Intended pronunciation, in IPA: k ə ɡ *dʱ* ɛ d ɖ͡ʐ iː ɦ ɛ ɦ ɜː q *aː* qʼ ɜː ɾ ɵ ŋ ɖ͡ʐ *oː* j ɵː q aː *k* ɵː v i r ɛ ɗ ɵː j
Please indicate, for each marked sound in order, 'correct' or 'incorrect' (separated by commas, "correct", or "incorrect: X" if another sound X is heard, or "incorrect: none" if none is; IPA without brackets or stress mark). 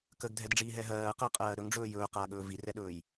correct, incorrect: əː, incorrect: ɵː, incorrect: ɠ